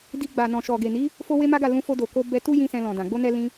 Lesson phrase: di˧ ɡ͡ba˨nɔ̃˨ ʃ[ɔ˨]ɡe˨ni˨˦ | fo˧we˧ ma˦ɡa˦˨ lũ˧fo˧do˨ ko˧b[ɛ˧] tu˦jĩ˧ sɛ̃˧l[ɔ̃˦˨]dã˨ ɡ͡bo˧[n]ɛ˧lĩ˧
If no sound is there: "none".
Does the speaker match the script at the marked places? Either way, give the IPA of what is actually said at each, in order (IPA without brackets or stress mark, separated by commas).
ɔ˨, ɛ˧, ɔ̃˨, n